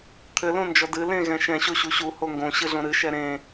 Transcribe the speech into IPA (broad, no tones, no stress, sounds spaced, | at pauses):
t̪ʰ ɘ l õ n d͡ʒ ɔ d ɨ l ẽ ɣ ɛ̃ ʃ ɛ̃ ɕ o ɕ u ɕ u h o ŋ ɡ õ ɕ ɨ ɮ õ ɾ ɨ ʃ ɛ ɾ ẽ